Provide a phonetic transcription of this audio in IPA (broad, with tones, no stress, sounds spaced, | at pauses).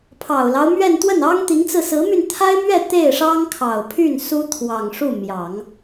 pʰ ɑ˨˩ ʊ̯ l ɑ˦ ʊ̯ m ɥ ɛ˥˧ n t̪ w ə˥˩ n ɑ˥ ŋ t̪ i˧˥ ŋ t͡s ɹ̩˧ s ɹ̩˧˥ m y˧ n t̪ʰ a˥ ɪ̯ m ɥ ɛ˥˧ t̪ e˥˩ ɪ̯ ʂ ɑ˥ ŋ kʰ ɑ˨˩ ʊ̯ pʰ y˥˩ n s u˥ t̪ʰ w ɑ˨˩ ŋ ʂ u˥˩ m j ɑ˨˩˦ ŋ